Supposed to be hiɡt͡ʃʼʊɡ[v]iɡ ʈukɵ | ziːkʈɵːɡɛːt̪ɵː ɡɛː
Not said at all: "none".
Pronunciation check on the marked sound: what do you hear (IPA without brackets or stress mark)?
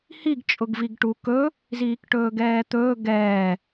v